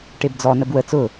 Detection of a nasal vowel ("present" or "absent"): absent